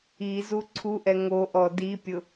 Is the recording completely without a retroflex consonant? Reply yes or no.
yes